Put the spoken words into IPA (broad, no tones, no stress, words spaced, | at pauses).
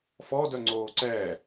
fɔdœ ŋ͡ǀoːǀɛː